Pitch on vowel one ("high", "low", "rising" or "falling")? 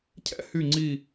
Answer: high